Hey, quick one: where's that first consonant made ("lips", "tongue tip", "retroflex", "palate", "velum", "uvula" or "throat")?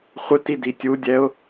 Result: uvula